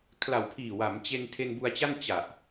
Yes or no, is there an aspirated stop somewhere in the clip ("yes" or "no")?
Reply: yes